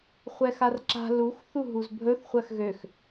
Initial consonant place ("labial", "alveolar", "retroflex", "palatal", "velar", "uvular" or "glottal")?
uvular